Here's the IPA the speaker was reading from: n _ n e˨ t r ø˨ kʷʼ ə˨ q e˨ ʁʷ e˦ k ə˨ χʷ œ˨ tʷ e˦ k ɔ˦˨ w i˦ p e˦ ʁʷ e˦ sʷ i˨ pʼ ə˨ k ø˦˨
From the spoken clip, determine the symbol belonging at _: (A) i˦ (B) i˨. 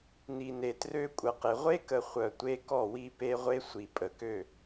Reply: B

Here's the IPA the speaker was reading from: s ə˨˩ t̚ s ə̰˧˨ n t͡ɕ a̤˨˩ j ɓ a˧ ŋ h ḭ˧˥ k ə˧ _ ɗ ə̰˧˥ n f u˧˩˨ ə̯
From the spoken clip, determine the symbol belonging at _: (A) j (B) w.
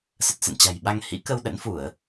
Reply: B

